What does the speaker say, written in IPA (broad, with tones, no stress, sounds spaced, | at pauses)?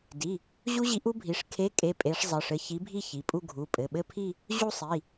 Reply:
d i˩˧˩ | ʑ u˦˥ ʑ i˨˥ ʔ u˦˥ bʱ i˩˧˩ ʂ kʰ e˨˥ kʼ e˩˧˩ pʼ e˨˥ ʂ zˤ ɘ˩˧˩ ʂ ɘ˨˥ ç i˨˥ bʱ i˥˧ ç i˩˧˩ pʼ u˥˧ ɡʱ u˩˧˩ pʼ ɘ˩˧˩ ɓ ɘ˥˧ pʰ i˥˧ | ʑ u˥˧ sˤ i˩˧˩